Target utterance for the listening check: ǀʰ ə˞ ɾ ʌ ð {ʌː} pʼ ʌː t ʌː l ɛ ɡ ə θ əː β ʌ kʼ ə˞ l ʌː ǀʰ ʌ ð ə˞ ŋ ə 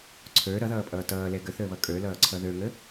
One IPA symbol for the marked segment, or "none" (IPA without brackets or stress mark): ʌː